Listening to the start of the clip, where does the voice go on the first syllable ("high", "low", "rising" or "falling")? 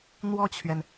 falling